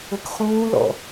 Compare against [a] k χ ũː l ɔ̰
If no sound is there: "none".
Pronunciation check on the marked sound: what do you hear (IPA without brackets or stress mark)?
ə